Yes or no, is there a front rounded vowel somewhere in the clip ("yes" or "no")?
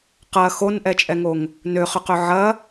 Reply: yes